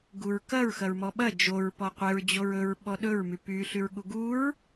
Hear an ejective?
no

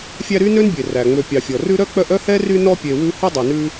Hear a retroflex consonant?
no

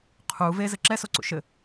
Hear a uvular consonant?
yes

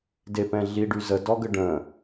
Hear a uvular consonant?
no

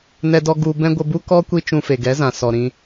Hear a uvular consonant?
no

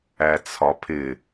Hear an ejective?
no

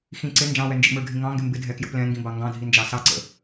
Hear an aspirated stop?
no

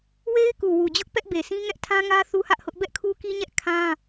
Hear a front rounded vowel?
no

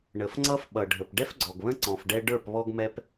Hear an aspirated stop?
no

